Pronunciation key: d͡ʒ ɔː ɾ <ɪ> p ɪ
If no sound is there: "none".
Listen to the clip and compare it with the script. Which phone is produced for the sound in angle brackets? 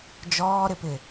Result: ɪ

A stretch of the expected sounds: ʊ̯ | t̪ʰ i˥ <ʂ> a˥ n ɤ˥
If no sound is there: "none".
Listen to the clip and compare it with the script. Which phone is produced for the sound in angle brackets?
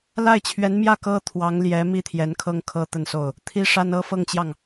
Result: ʂ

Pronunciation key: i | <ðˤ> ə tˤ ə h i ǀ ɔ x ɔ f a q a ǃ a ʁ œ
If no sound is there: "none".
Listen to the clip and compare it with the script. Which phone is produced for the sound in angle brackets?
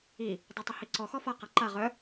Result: dˤ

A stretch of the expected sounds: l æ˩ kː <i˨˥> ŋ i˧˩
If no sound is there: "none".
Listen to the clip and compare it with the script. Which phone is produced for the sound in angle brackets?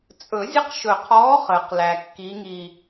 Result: i˨˥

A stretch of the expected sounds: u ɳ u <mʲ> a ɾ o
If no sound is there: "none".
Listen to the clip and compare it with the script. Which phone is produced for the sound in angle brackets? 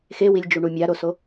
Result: mʲ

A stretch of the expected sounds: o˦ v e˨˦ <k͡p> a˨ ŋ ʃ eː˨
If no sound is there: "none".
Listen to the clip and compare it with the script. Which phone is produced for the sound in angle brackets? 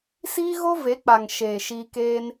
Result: k͡p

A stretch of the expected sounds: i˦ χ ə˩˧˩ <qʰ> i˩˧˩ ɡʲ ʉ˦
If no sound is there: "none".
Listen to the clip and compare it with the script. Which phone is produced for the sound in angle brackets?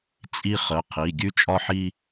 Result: qʰ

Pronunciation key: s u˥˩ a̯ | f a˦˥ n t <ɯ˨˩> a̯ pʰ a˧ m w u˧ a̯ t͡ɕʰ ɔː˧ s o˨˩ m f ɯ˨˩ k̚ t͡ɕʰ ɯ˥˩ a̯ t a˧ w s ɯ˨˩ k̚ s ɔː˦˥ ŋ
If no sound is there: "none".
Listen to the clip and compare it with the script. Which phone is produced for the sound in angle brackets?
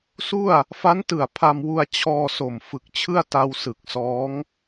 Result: ɯ˨˩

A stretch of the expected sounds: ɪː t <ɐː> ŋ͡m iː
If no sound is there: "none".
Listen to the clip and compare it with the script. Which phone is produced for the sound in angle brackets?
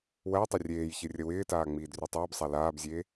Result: aː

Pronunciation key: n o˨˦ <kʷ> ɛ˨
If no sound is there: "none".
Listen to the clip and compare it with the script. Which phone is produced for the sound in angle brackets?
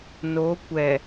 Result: kʷ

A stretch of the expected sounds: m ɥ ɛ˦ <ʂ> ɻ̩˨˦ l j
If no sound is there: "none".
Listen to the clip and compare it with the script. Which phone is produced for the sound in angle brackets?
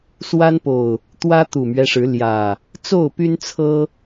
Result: ʂ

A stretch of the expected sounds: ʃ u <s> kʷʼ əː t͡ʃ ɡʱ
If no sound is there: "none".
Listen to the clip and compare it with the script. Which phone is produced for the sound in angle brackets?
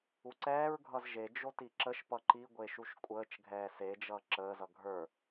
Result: ʃ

